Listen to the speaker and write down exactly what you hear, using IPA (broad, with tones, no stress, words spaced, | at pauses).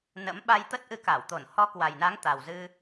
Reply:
nə̰˧˥m ɓa˧jt̪ə˦˥t̚ʔɨ˧ ka˧˩wt̪o˧˩n hɔ˨˦ kwa˨˩jna˨˦ŋ t̪a˨˩wzɨ˧